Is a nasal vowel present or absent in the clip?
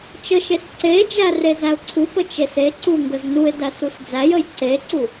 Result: absent